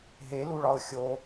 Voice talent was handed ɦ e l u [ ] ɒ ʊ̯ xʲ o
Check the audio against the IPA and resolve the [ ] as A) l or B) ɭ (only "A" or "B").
B